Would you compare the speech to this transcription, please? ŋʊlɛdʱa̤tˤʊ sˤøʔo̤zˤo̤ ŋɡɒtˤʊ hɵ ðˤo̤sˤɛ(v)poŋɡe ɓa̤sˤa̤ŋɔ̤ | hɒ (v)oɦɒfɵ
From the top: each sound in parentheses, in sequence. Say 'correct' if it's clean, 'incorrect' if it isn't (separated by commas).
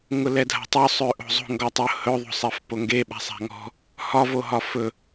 incorrect, correct